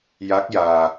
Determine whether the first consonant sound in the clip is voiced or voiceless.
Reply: voiced